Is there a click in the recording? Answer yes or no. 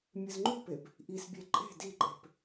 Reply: yes